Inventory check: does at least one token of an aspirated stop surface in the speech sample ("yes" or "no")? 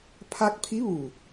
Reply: yes